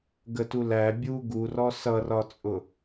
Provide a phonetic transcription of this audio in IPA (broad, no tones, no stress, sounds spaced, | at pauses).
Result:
ɡ ə t u l æ bʲ u ɡ u r ɔ s ʌ r ɒ t͡sʼ ʊ